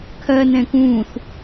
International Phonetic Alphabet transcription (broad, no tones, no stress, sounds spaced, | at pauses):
kʰ ɜ n ɛ̃ k ũː θ